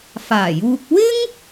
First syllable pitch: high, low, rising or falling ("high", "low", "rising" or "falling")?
low